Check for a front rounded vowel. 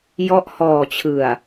absent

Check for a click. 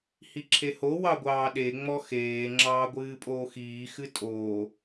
present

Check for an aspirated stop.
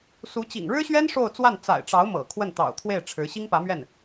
present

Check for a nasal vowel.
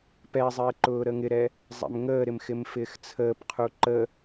absent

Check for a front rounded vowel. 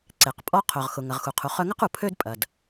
present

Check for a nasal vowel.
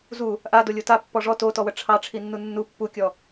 absent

